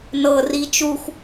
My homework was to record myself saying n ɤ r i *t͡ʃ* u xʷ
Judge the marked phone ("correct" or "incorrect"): correct